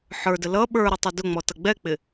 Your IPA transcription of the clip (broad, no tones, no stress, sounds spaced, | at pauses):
ħ ə˞ d ə l ʌ ɓ ə˞ ɾ i tˤ ʊ d ʊ ŋ͡m ɔ t ʌ ɡ͡b ɛ k͡p ɪ